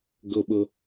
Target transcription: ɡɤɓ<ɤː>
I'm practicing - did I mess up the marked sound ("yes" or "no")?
yes